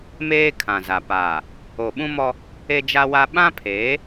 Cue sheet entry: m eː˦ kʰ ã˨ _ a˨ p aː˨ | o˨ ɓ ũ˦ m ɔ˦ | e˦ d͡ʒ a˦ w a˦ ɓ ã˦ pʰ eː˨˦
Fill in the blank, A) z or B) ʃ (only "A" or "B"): A